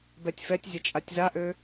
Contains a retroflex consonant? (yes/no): no